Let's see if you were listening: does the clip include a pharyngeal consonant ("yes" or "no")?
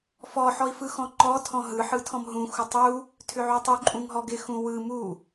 yes